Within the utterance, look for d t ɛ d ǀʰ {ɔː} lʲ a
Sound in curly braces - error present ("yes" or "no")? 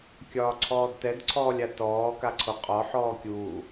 no